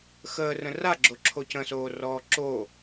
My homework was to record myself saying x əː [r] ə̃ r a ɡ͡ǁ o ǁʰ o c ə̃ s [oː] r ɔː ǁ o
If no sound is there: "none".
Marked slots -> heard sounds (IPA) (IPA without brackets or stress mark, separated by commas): r, oː